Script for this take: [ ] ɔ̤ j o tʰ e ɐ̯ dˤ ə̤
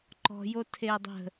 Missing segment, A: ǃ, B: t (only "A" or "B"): A